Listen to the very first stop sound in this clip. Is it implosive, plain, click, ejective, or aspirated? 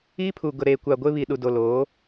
aspirated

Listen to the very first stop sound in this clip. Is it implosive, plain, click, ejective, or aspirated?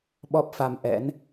implosive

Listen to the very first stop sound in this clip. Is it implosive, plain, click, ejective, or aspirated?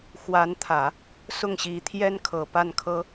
aspirated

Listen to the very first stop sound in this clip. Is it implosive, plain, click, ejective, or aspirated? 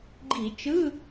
click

